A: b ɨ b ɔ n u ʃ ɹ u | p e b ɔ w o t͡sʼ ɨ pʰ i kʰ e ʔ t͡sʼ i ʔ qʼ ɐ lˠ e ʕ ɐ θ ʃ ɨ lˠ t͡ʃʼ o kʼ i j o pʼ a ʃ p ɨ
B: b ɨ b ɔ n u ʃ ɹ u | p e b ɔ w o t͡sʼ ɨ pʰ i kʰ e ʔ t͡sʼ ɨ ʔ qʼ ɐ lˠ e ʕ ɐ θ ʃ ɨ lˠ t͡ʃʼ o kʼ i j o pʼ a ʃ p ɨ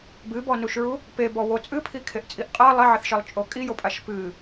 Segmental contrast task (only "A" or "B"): A